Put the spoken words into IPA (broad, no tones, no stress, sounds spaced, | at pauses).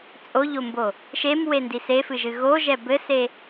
t͡sʼ o ʎ o m b o | ʃ e m w e n d i s e f ɨ ʒ ɨ ɣ o ʒ ɛ b ɘ s e